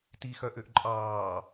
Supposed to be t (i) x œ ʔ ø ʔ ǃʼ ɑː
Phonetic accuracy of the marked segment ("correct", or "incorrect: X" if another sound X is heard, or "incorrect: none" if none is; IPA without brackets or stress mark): correct